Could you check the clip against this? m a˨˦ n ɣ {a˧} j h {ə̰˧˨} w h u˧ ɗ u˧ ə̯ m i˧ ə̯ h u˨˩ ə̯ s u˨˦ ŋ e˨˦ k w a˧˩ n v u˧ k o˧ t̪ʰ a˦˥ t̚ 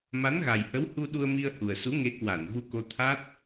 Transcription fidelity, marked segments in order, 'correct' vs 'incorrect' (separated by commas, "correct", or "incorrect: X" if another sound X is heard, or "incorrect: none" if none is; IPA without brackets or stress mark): incorrect: a˨˩, incorrect: ə˨˦